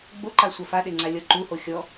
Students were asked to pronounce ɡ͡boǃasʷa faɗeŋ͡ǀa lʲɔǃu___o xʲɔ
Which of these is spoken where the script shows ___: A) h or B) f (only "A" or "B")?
A